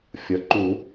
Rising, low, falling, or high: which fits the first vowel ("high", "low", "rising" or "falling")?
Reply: rising